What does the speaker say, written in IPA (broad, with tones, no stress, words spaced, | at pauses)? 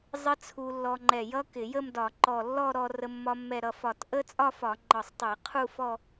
zˤɪ˦˥ t͡sʰu˧lːɔ˧ŋ͡ǃɛ˧˩ jʌ˦˥kɪ˧˩˧jə˥˧mdɒ˧˩˧ ǃɔ˧˩ lːɔ˥˧ɾɔ˧rə˧ mːɒ˧mːɛ˧˩ɾʌ˧˩ fɒ˧˩t ʔə˦˥t͡sʼɒ˥˧fɒ˧˩˧ ŋ͡ǃɒ˧˩sˤtˤe˧˩˧ qʰu˥˧fɔ˥˧